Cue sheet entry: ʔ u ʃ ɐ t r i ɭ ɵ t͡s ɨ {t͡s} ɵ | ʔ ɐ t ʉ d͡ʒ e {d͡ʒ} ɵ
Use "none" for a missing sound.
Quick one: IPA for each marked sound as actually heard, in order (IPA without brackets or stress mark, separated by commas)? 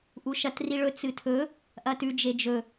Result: tʰ, d͡ʒ